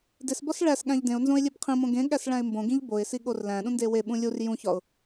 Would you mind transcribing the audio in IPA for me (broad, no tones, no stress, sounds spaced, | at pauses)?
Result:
d e s b ɒ s ɭ æ s ɠ æ̃ ʎ d ẽ ʊ̯ n z õ ɪ̯ lʲ e b qʰ ĩ m õ ɡ ẽ ɠ æ s ɭ æ̃ ɪ̯ m b õ ɡ ĩ ʎ b o ɪ̯ s i ɠ o r l æ̃ ɗ ũ n d e w e ɓ ũ lʲ u r j ũ ç ɒ ʊ̯